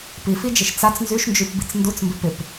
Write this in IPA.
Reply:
pifid͡ʒɪʃ t͡sat͡s nzyʃnd͡ʒypbit͡s ndut͡smbɪ pɪp

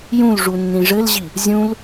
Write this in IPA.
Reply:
jũl ʐunːĩʐɘlʑi | zʲũl

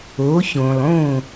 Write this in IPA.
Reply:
o˩˥çõ˩lˠõ˥˩

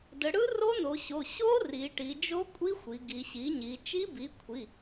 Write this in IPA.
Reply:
də˩˧ɽɯ˦˥ ro˦˥no˩˧ɕo˩˧˩ ɕo˦˥ ri˩˧ʈi˩˧ d͡ʒo˦˥kʷʼi˦˥xʷi˩˧ ɡi˩˧ɕi˩˥ɲi˩˧ t͡ʃi˦˥bi˩˥kʷʰi˩˧˩

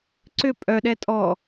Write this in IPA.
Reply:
ǀʏ pʼœɗɛ tʼɔ

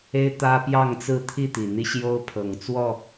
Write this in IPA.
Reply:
e˦ɪ̯t̪ä˦pjɑ˥˨ŋt͡sɹ̩˥˨ t̪ʰi˥˨t̪i˩n̪i˦ ɕjo˦ʊ̯ pʰɤ˨˩ŋt͡swɔ˥˨

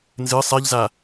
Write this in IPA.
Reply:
nzɨ sˤɛʎza

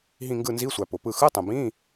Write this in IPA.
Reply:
ɦĩ˦˨ŋɡɯ˦˨nzi˧˥˧sʷæ˨ pʊ˨pɯ˦˨ xɯ˧˥˧tˤə̃˨bĩ˧˥˧

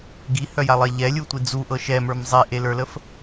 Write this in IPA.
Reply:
ɡihœjalˠe ʎɛlʲutʷi d͡zuʔɤ ʃɛmə˞m zˤeʔelə˞ləf

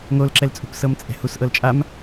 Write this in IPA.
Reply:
ŋolǁɛlt͡sʼṳp sɤmt͡sʼɛ̤hus ʔɤlt͡ʃʼam

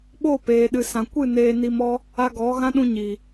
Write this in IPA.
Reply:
ɓo˦˨peː˨ɗɨ˨ sã˨kʷɨ˦˨ neː˧ni˧mɔ˦ | a˧ɡɔ˨˦ ɣã˦ɗũ˧ɲi˨

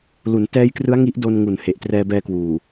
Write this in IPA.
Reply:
lu˩˦ntɛː˦˥jkrɯ˦˥a̯ ŋi˦˥ʔdo˧nŋu˨˩n he˨˩ʔ trɛː˧bɛː˧kwuː˨˩

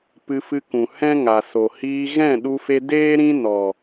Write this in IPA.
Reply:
pɨ˧fɨ˧kũ˨ hɛ̃˦ŋa˨so˨ hiː˧ ɣɛ̃˦˨ɗu˧fe˧ deː˦ɾĩ˦ nɔ˨

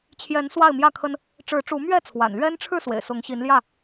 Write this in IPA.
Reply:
t͡ɕʰjɛ˨˦n swa˥˨ɪ̯mjä˥˨kʰə˦n | ʈ͡ʂɻ̩˨˦ʈ͡ʂu˨˦mɥɛ˥˨t͡sʰwa̰˨˩n lɥɛ˦nʈ͡ʂʰɻ̩˥˨ swḛ˨˩ɪ̯sʊ˨˦ŋɕi˨˦nljä˥˨

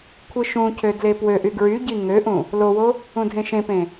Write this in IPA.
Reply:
kʷʰɯʃũcʰø dlepwøʔy ɡɹyɟi ŋøʔũ | lowo | ũdʱẽʃẽpẽ

